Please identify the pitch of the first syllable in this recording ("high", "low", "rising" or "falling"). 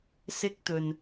high